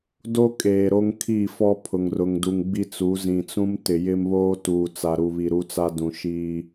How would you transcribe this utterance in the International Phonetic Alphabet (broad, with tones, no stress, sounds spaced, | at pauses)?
d o˦ kʼ eː˨ ɾ o˦ ŋ kʰ i˦˨ f ɔ˦ pʰ ʊ˨ ŋ r ʊ˨ ŋ d u˨ ŋ ɡ͡b i˦ t͡s u˨˦ z ĩ˨ t͡s ũ˦ m t ɪ˨ j ɪ˦ m β oː˦ t uː˨ t͡s a˨ ɾ u˨ β i˨ ɾ u˦ t͡s a˦ d ũ˨ ʃ iː˦